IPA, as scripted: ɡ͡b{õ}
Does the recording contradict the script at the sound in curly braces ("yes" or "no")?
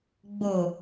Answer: yes